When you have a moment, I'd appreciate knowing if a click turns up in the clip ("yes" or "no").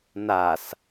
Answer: no